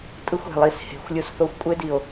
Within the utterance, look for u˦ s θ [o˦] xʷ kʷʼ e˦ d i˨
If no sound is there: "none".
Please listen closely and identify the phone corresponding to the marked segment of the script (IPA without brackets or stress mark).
o˦